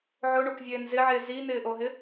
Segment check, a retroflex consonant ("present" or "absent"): present